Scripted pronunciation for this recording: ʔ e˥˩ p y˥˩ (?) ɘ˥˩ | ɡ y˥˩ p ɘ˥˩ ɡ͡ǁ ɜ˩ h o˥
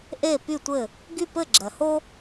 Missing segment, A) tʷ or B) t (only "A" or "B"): A